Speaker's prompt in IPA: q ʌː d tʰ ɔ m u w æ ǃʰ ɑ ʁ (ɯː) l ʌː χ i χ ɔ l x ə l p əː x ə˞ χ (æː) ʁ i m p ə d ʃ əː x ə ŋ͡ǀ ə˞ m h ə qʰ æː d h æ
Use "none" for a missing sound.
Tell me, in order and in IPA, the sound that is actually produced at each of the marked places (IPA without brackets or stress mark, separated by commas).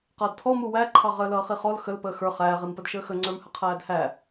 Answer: əː, æː